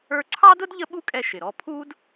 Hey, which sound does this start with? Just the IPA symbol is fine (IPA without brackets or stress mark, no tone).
ə˞